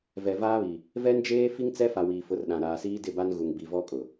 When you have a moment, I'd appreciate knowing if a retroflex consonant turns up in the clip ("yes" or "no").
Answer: no